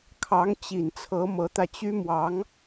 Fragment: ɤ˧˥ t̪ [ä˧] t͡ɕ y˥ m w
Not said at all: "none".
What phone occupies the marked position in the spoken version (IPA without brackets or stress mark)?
ä˧